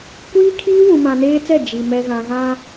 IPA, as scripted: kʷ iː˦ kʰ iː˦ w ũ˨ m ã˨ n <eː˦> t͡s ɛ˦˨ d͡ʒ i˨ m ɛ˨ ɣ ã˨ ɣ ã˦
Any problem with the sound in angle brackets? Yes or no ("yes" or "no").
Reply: no